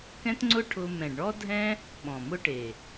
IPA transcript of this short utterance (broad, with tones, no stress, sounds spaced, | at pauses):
k ɛ̃˦ t ŋ͡ǀ ʊ˦ ʈʰ ʊ˧ m ɛ̃˨ ɖ ɳ ɔ˦ dʱ ɛ̃˦ | ɓ ɔ̃˨ m ʊ˦ ʈ e˨